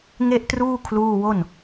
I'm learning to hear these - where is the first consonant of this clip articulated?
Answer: velum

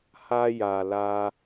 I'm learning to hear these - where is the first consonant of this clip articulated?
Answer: throat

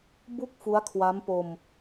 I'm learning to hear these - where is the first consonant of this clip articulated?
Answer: lips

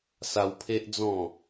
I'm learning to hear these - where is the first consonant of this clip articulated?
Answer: tongue tip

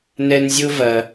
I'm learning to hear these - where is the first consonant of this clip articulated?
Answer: tongue tip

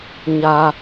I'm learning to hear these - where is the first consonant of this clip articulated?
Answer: palate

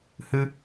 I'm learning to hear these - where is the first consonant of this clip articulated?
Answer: throat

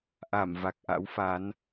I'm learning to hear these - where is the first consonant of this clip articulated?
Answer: throat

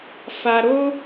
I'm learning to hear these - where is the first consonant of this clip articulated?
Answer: lips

